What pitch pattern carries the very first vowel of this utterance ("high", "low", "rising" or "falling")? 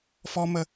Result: high